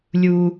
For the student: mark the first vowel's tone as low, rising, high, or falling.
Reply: high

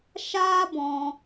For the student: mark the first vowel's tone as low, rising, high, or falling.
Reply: high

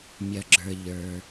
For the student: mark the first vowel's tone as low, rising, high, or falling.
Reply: low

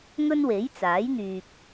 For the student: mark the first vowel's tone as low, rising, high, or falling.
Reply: high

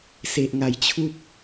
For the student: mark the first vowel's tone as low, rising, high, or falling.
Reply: low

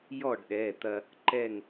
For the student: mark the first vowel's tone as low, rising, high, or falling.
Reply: falling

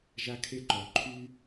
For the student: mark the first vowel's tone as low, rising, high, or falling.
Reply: high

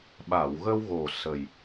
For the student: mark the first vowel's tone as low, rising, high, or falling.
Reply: low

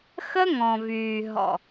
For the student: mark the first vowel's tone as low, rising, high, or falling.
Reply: high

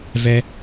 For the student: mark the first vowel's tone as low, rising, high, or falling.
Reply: high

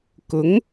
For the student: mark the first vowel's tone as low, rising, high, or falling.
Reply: rising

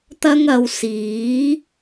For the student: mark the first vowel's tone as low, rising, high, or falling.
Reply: high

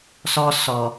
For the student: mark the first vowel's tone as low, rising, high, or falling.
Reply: high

